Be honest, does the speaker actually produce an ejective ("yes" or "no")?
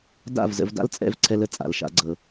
yes